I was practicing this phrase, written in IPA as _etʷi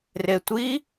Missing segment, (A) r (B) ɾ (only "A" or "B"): A